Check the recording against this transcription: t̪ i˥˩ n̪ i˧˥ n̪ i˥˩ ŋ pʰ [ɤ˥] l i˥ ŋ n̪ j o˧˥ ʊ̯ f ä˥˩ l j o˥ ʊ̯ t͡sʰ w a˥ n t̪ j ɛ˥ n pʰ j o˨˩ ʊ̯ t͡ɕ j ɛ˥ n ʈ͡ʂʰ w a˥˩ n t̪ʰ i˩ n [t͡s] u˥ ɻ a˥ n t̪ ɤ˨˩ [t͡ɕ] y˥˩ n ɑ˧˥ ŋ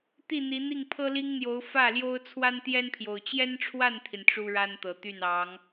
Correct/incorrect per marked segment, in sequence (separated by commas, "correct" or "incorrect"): correct, incorrect, incorrect